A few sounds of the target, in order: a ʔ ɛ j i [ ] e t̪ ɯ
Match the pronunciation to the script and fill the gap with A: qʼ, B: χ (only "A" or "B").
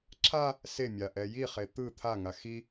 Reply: B